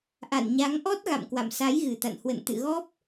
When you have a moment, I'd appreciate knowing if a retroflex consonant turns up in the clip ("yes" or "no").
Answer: no